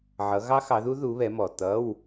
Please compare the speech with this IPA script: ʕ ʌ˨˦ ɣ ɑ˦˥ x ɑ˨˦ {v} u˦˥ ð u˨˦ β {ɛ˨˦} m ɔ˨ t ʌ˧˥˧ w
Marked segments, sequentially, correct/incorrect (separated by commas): incorrect, correct